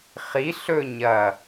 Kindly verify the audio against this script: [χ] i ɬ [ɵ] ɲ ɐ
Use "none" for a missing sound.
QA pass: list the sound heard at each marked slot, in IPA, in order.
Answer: χ, ɵ

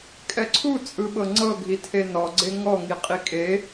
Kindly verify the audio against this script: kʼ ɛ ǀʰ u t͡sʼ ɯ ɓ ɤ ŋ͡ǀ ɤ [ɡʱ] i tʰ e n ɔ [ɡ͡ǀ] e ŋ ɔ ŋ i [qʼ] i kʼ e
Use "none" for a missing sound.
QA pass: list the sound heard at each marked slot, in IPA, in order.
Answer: ɡʱ, ɡ͡ǀ, qʼ

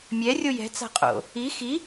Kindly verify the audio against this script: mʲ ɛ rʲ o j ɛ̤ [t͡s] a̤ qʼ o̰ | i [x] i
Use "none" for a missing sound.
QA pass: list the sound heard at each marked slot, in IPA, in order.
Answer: t͡s, x

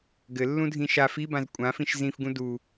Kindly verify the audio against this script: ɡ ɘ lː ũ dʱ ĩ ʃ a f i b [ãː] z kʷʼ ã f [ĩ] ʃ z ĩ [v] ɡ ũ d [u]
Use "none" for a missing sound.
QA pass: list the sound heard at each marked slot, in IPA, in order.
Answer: ã, ĩ, f, u

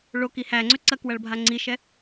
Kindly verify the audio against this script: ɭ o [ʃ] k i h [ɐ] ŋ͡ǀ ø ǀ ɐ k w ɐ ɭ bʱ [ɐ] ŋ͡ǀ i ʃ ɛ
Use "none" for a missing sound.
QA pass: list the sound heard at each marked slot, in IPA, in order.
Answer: none, æ, a

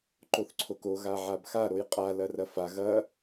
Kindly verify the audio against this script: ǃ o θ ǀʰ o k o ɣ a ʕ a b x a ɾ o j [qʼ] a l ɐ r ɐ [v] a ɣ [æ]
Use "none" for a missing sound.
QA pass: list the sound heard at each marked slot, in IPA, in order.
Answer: qʼ, f, ɐ

